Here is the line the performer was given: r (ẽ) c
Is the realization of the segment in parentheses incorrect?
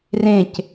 no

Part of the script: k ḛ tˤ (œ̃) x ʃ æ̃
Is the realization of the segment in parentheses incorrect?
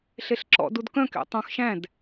no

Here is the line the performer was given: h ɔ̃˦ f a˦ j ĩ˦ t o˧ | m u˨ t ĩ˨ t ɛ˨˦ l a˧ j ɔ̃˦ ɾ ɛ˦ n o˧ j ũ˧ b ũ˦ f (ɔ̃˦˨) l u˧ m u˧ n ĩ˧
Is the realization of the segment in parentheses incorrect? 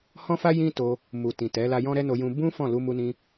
no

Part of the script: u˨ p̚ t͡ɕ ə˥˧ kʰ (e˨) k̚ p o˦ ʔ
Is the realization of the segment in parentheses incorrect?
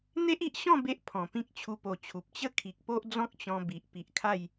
yes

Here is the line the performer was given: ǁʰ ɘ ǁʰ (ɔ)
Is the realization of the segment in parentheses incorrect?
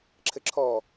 no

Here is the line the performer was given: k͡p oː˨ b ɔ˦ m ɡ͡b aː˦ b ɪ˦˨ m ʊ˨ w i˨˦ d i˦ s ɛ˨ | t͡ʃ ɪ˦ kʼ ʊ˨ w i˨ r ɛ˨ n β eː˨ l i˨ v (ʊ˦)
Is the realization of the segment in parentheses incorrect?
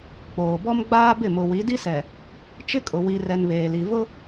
no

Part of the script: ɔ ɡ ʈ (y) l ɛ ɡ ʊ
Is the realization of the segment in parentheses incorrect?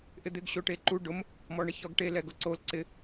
yes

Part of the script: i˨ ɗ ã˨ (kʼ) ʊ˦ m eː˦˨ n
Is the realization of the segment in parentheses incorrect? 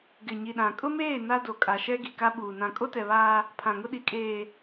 no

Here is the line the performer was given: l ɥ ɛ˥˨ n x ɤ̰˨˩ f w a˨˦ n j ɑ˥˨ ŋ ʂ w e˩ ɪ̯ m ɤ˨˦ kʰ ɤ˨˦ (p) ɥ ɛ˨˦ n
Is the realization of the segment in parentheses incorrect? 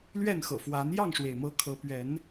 no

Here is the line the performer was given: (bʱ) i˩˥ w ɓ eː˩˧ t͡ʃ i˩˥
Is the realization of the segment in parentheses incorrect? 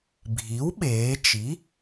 no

